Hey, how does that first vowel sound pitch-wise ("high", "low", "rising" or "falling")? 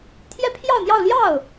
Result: high